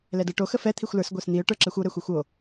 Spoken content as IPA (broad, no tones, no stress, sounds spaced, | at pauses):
l ɛ d ə˞ ʈ o x ə f ɛ t̪ʰ i xʷ l ə˞ s ɡʷ ə˞ s n̪ i ʊ̯ ʈ ə˞ ǁ ɛ xʷ o ɾ ɛ xʷ ə˞ xʷ o